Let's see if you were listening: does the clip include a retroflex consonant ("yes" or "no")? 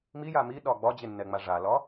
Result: yes